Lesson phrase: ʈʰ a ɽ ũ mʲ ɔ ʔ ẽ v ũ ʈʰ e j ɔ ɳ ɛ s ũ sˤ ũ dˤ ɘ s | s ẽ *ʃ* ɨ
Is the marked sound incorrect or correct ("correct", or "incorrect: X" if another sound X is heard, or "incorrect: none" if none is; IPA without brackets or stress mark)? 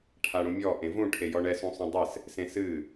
incorrect: s